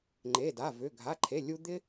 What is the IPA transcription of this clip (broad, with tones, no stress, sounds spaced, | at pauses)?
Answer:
ŋ͡ǃ e˩˧˩ d a˩˧˩ v ʏ˩˧˩ ɡʱ a˩˧˩ ǃʰ e˩˧˩ lʲ u˧ d̪ ɪ˧